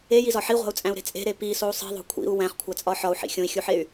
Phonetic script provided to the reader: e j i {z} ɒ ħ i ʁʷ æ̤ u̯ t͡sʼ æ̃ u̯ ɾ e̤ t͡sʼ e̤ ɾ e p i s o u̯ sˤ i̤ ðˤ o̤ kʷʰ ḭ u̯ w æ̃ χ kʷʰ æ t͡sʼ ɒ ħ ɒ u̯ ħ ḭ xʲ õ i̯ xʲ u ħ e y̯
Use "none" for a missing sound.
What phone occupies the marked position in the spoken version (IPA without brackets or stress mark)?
z